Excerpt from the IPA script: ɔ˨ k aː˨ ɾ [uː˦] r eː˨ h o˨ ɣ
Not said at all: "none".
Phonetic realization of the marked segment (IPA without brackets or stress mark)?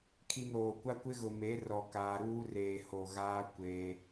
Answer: uː˦